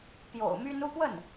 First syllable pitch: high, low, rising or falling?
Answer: low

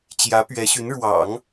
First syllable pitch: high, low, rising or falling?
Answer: rising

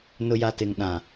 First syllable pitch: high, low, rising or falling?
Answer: low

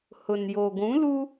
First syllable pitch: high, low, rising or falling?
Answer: low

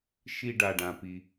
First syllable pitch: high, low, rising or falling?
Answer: high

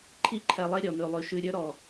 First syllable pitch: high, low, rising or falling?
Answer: high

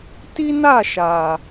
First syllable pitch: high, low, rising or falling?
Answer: high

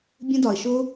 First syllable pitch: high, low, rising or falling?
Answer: high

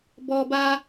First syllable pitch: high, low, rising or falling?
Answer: high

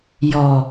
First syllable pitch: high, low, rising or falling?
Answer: low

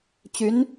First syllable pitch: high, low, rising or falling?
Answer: rising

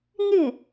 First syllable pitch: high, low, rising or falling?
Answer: falling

